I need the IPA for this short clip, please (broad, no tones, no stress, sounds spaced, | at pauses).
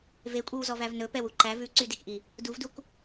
v e kʷʼ i w z ɔ v æ v n ɵ p ɛ w u ǃ æ v ʉ ǀ y d e k ʔ i | d u v d u k